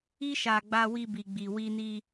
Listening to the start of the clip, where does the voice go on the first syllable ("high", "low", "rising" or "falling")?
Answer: high